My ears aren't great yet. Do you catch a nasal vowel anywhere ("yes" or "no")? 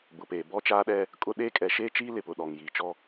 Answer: no